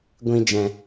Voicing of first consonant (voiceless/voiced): voiced